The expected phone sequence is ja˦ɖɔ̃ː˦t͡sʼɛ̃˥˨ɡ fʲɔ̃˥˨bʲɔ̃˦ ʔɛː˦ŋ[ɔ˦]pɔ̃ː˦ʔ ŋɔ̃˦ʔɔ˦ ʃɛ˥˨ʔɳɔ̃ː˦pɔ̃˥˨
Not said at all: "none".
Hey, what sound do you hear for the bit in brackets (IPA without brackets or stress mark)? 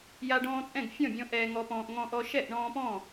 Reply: ɔ˦